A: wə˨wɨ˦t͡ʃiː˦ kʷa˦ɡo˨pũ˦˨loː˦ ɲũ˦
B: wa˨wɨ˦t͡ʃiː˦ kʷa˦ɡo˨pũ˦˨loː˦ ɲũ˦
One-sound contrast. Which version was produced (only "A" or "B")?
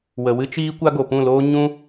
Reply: A